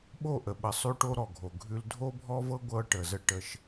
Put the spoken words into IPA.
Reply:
ɓ o˦˨ ʔ ə˨ ɓ ə˨ sˤ ʉ˦ ʈ o˦ ɾ ɔ˨ ɡʱ o˨ ɡʱ ʉ˦ l dʱ o˦ bʱ ɔ˦ v ɤ˦ ɡʷ ɤ˦ ʈ ə˨ z ə˦ ʈ ə˦ ʃ

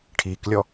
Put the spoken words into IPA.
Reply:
ʈʰ i k lʲ ɔ

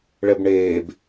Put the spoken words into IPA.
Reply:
ɭ ɛ b ɳ eː b

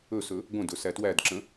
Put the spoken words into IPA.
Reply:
ɵ s ɵ | ɡʷ ə̃ d ɵ s æ t w æ d ǁ ə̃

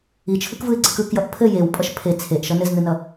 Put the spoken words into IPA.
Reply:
i t͡ʃʰ ɯ k v ɯ ɪ̯ ɡ͡ǀ ɘ k ɯ k j ʌ ʔ pʰ ɘ j e w pʼ ʌ ʃ pʰ e t͡sʰ e ʔ ʃ ʌ n ɘ z n ɯ n ʌ

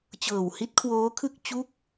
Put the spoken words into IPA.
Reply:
t͡ɕ ɤː˨˩ w h i˦˥ t̚ kʰ w oː˦˥ kʰ ɯ˥˩ k̚ t͡ɕ u˦˥ k̚

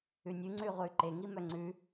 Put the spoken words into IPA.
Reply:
ʉ nʲ ʉ ŋ͡ǀ ʉ y̯ ʁʷ œ y̯ ǃ e ŋ i m œ ŋ͡ǀ ʉ

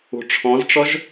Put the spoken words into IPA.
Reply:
ṳ ʈ͡ʂʰ ɔ̃ z ʈ͡ʂ ɔ ʒ

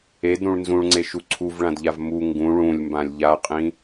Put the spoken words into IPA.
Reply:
e d ɾ ũ ɭ n z ũ ɭ ŋ͡ǀ e ʃ u ǀʰ u v ɭ ã d ʎ a v m u ŋ ɡ ũ ɭ ũ lʲ m b ã lʲ ʎ a qʼ ĩ

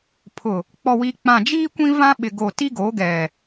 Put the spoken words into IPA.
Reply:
pʰ ʊ˨ | k͡p ɔ˨ w i˨ k͡p ã˨ d͡ʒ iː˦ kʷ ĩ˦ v ã˦ ɓ ɪ˨ ɡ o˨ t i˦ ɡ o˨˦ ɡ ɛ˨

